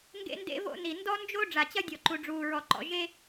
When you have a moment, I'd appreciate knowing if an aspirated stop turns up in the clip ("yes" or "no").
no